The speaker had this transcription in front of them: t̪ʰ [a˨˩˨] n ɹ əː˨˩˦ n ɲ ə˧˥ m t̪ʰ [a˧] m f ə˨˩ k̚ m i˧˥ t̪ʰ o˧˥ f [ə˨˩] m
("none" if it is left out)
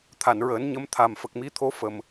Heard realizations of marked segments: a˨˩˨, a˨˩, ə˨˩

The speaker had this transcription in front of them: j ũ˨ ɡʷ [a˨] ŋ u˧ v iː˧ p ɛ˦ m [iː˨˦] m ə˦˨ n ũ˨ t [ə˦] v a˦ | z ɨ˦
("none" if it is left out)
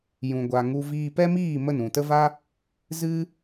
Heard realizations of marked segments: a˨, iː˦˨, ə˦

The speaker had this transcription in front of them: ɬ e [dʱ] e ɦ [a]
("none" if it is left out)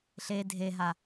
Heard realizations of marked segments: dʱ, a

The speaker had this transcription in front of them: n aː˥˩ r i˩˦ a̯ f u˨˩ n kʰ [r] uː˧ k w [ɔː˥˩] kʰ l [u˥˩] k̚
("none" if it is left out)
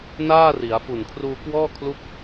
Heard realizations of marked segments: r, ɔː˥˩, u˥˩

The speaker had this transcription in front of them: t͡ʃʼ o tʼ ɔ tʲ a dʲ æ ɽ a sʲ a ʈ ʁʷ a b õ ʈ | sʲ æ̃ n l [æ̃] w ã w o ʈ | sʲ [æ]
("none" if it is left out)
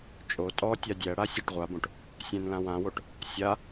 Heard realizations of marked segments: ã, a

